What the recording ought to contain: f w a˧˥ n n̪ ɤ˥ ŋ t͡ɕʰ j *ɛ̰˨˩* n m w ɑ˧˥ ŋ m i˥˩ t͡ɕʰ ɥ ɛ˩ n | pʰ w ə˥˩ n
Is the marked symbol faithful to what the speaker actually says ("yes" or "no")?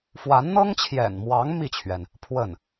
yes